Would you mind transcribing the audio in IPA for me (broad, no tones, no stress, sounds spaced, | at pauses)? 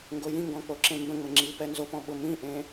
ŋ ɡ o j ĩ ŋ ɡ ɔ̃ k͡p o ǁ ẽ m b ə̃ ŋ͡m ə ŋ͡ǁ iː p ɛ n z o p ɔ̃ ɓ ʊ m ĩ ʔ ẽ